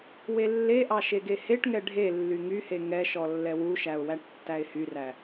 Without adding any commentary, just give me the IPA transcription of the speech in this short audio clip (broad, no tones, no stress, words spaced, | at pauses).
welːeʔɑ ʃeɡeheʈŋɛ ɖʱe lːyŋyhe ŋɛʃɔ lːɛwuʃæʊ̯ wæʈtːæɪ̯hyræ